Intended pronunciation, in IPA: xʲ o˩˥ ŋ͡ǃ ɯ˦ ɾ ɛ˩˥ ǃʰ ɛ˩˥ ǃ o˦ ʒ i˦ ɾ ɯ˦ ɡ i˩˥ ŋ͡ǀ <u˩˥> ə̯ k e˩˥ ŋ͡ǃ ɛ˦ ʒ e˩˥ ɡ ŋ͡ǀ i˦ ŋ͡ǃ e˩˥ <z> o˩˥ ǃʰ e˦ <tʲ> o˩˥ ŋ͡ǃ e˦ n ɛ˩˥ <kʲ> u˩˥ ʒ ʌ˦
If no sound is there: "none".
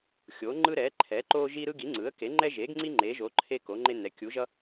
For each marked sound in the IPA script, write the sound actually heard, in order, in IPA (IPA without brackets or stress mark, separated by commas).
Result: ɯ˩˥, ʒ, k, kʲ